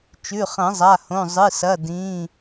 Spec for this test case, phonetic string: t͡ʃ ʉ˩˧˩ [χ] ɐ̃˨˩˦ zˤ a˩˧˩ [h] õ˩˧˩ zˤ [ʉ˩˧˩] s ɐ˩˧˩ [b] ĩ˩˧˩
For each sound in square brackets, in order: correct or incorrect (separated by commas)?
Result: correct, correct, incorrect, incorrect